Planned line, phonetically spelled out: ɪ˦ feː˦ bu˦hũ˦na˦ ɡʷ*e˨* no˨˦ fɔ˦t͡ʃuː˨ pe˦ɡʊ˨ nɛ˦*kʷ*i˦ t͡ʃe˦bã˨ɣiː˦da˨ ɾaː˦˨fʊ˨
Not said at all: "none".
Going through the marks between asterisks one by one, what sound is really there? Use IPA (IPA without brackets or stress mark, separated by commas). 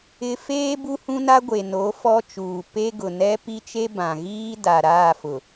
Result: e˨, p